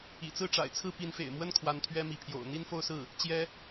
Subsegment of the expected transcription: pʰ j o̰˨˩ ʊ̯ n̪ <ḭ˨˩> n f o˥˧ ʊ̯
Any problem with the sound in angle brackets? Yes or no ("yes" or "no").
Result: yes